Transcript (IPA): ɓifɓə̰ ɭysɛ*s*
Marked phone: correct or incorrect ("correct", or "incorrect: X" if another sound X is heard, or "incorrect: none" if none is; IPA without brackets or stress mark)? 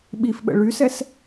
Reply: correct